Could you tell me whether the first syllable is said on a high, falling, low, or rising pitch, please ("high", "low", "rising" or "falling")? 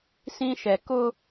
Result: high